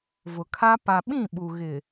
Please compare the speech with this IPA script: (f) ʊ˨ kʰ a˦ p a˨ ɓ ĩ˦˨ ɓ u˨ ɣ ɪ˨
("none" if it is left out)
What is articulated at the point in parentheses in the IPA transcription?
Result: v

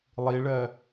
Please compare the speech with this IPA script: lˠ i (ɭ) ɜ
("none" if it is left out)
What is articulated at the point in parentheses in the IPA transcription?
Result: ɭ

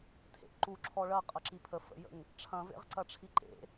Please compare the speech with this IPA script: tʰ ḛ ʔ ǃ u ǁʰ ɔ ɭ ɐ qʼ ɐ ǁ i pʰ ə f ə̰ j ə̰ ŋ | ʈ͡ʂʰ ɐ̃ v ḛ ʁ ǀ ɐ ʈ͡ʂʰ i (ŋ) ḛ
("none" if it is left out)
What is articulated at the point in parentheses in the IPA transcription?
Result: ǃ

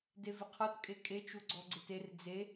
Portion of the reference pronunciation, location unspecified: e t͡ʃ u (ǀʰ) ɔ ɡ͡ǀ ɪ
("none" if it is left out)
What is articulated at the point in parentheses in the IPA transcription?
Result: ɡ͡ǀ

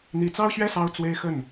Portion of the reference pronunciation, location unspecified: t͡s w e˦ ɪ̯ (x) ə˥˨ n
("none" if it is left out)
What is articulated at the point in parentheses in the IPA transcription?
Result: x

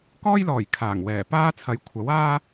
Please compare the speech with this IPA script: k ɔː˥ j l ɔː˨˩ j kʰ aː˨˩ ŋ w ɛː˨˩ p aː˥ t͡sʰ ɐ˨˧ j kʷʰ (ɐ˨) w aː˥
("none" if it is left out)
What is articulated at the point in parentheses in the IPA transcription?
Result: ɐ˨˥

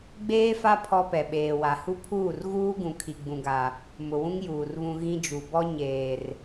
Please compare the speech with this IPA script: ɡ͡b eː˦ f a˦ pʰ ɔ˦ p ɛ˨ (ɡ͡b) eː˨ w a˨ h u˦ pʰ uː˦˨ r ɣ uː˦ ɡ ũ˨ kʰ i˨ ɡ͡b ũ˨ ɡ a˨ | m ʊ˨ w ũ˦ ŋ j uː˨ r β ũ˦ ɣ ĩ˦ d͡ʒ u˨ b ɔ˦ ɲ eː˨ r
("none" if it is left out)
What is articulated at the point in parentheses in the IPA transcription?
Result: ɓ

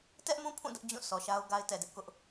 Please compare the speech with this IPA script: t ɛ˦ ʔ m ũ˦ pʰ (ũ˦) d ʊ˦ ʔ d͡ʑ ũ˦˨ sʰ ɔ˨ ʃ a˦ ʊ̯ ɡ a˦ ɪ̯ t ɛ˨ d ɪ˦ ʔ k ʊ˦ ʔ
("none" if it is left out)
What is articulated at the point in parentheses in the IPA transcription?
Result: ũ˦˨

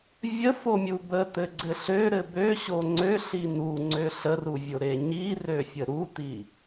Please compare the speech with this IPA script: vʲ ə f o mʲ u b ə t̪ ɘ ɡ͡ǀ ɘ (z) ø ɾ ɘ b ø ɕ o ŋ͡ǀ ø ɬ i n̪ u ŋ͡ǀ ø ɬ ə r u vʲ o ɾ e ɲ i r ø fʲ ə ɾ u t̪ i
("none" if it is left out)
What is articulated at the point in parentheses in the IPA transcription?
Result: ɬ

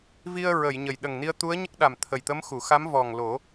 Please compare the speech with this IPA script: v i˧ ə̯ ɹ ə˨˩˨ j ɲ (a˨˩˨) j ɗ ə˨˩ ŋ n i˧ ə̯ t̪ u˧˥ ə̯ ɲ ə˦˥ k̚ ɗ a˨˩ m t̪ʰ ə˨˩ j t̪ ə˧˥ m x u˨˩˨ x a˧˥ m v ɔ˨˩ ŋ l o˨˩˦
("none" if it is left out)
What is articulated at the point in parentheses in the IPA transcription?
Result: ə˨˩˨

